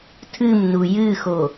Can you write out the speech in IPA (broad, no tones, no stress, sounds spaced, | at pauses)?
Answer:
tʰ ɨ m n u j ɨ x o